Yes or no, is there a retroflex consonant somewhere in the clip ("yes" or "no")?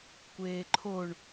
yes